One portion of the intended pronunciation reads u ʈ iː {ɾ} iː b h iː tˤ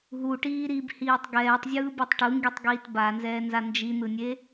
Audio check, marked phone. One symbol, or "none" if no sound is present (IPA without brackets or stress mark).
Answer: ɾ